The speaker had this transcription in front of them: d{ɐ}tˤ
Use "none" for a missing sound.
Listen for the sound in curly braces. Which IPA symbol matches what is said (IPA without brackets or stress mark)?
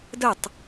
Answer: ə